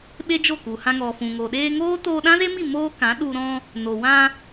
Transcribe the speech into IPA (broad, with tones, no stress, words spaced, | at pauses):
ɓe˦d͡ʒo˦˨ku˨hã˧ ŋɔ˨fũ˨ŋo˨ ɗeː˧ ŋoː˦ toː˧ɗã˦ze˦mi˦˨ moː˦kã˨˦ɗu˧ ɾɔ̃˧ | no˨wã˧